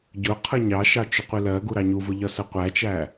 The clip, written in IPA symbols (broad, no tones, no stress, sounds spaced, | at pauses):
ɟ ʊ qʰ ʌ ɲ ɑ ʃ ɑ t͡ʃ ʊ qʷ i l ɜ ɡ u ɾ ɑ ɲ u v ʊ ʎ ɒ s ə qʷ æ t͡ʃ æ